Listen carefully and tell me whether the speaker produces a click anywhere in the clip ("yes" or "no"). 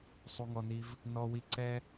yes